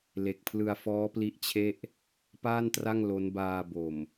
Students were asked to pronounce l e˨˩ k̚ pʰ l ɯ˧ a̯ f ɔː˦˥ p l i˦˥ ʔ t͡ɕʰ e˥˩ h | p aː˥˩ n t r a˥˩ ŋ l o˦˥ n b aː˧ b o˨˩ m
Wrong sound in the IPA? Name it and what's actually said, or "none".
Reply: h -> ʔ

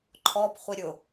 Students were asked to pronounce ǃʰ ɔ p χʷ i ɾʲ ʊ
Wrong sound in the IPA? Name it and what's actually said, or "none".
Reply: none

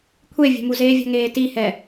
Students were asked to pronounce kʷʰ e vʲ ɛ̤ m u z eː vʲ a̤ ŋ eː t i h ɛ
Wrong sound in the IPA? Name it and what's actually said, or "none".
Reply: none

